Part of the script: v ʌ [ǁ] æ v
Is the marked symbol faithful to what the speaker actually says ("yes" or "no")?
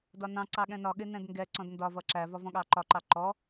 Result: yes